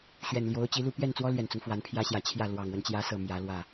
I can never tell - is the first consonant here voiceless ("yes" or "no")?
yes